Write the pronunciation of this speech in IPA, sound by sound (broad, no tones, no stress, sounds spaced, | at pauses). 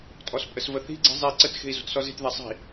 tʼ ɔ s pʼ ə s v ə θ i̤ ɡ͡ǀ i̤ zˤ i ǀ ə t x e̤ i̯ z o̤ t s ɔ z e̤ t ð ɛ sˤ i̤